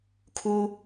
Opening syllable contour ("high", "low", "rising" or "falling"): high